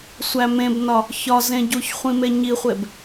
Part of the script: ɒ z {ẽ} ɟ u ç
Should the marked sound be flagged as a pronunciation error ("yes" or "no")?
no